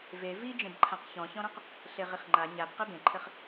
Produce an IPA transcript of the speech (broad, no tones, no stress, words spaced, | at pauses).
ve vid͡ʒẽbǃʰãq çɔ̃çɔ̃ɾɔ̃q | ɬeʁiχŋ͡ǃa ɲab qɛbẽǃʰɘχ